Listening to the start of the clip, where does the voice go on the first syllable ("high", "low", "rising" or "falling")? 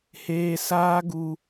high